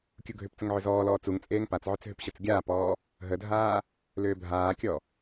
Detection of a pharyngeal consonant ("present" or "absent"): present